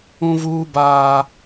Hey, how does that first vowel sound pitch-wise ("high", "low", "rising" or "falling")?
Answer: high